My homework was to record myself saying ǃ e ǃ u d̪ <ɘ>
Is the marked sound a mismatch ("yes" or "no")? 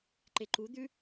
yes